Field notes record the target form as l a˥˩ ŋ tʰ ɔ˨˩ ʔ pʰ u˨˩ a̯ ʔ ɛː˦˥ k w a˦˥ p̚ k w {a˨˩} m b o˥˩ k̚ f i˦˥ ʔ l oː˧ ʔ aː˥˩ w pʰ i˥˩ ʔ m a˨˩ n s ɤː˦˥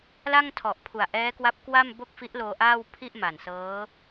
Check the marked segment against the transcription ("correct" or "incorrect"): incorrect